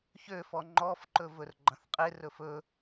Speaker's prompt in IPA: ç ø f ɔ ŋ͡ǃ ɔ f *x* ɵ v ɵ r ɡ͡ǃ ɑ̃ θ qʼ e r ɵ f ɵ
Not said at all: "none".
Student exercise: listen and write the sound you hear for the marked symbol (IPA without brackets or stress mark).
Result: ǃ